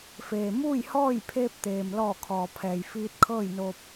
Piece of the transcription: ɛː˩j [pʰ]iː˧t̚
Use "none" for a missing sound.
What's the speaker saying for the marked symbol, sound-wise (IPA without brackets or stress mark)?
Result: f